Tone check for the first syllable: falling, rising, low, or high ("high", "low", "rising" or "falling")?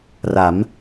rising